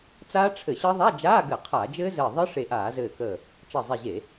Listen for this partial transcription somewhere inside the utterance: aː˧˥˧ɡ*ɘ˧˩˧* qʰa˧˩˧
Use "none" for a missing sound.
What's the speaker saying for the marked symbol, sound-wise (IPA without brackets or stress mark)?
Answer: ɘ˧˩˧